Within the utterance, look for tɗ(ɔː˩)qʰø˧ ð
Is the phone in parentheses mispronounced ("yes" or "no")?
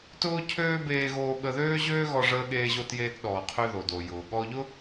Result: no